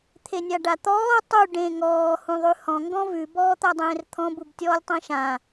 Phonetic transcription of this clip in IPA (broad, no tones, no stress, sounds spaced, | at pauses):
t̪ʰ e nʲ a ɖ a t̪ ɔː tˤ u ɖ ẽ ŋ ɔː h ũ ðˤ ʉ h ɔ̃ ŋ ɡ ɔ̃ v ʉ b ɔː t̪ a dˤ ẽː r t̪ʰ ɔ̃ b u b tʲ ɔː lʲ tˤ ã ʃ ã